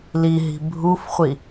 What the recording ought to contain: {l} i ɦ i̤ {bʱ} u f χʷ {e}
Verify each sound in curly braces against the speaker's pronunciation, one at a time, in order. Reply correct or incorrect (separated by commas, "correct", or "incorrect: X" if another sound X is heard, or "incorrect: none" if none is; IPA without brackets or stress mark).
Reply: correct, correct, incorrect: i